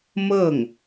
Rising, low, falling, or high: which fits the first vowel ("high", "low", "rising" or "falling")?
falling